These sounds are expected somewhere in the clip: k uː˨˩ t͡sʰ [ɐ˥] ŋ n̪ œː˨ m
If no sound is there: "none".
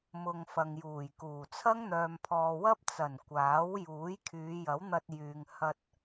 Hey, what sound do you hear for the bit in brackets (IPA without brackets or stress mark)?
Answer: ɐ˥